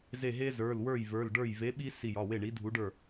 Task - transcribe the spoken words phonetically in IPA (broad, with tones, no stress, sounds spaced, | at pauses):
z e˧˩ ɦ e˦ z ə˞˩˧˩ l w ə˞˥˩ j v ə˞˩˧˩ l ɖ ə˞˥˩ j v e˨˥ ɓ i˦ s i˧˩ j ɒ˩˧˩ w e˥˩ ɳ i˨˥ dʱ u˨˥ ɖ ə˞˥˩